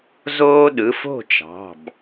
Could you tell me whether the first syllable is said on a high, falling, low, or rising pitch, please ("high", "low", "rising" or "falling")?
high